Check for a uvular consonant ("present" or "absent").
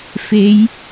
absent